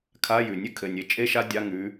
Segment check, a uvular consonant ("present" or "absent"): absent